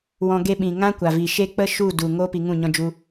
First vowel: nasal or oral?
nasal